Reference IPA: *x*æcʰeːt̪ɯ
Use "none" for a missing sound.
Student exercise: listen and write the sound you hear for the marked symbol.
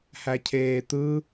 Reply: h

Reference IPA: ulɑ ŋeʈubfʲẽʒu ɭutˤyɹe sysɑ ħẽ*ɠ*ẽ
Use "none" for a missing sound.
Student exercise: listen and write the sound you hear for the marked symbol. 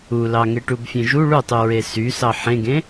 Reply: ɡ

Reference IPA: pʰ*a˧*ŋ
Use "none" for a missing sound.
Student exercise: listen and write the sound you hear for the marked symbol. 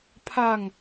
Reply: a˧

